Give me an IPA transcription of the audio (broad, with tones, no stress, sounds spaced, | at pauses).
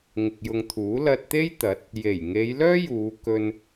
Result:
ŋ ɪ˨ k̚ j ʊ˨ ŋ t̪ʰ uː˨˥ l ɐ˧ t̚ t̪ e˥ j t̪ ɐ˨˥ t̚ | j e˨˩ j ŋ e˨˧ j l œː˥ j uː˨˧ k ɵ˧ n